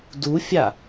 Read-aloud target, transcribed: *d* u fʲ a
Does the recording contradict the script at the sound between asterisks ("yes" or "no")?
no